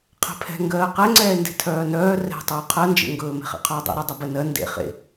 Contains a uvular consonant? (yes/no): yes